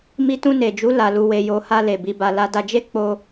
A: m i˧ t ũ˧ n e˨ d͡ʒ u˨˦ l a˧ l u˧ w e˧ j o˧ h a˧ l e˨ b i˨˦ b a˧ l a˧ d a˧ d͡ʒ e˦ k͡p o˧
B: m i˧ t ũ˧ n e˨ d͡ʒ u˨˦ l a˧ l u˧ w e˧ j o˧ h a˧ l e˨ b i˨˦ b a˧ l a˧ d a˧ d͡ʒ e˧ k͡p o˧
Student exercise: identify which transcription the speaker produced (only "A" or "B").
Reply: A